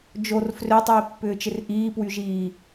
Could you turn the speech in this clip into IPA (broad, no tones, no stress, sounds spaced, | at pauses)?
d͡ʒ o r f r ø tˤ iː pː ʏː t͡ʃ ɪ r ʔ iː p w y ʒ iː